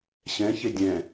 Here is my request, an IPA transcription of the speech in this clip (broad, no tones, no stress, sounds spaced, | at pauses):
ɕ ɛ̃ ç e dʲ ɛ̃